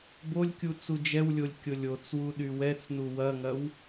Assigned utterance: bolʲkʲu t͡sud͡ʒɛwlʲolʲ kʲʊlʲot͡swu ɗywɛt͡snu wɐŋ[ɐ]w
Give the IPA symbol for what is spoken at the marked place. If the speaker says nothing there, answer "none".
ɐ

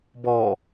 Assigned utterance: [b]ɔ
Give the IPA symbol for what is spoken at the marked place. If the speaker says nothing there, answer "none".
b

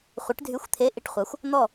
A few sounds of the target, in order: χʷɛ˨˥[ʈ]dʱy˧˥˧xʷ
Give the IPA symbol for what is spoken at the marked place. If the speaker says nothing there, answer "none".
ʈ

